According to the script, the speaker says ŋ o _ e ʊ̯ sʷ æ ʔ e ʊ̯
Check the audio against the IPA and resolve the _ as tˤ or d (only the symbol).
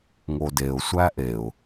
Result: d